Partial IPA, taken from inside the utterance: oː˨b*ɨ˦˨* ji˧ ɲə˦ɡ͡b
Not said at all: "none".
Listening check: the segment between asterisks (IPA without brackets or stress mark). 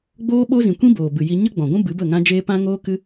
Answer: ɨ˨